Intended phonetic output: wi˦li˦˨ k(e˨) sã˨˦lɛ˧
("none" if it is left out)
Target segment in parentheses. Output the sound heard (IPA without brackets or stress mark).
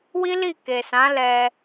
e˨